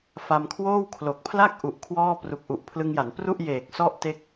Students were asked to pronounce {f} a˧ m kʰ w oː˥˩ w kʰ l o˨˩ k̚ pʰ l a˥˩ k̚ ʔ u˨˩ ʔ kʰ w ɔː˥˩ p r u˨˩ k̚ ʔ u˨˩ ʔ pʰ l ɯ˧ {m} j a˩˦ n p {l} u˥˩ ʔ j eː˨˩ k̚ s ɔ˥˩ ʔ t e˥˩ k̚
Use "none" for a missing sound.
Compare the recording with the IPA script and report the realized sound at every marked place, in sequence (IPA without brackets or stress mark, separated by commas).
f, ŋ, r